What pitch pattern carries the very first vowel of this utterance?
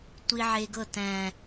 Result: low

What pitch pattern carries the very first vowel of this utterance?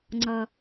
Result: low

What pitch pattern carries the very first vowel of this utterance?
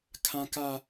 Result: high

